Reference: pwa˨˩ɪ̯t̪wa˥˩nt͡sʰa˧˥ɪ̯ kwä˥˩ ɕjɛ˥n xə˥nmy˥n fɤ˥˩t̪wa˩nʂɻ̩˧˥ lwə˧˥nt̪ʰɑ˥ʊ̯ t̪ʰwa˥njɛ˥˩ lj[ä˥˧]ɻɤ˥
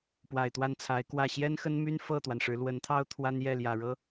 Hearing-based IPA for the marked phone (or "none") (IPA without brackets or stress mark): ä˨˩